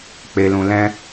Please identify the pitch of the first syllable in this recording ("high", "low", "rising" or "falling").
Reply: low